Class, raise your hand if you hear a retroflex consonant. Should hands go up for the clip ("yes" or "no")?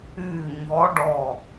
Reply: yes